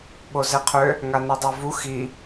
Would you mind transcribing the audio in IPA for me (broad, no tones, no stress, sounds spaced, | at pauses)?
ɓ o z ɛ qʰ ø | ŋ a n i dˤ a v u x i